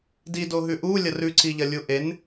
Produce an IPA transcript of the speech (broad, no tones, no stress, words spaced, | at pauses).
dido ɦʉʔulʲɐr ʉǀiʎɐ lʲuʔen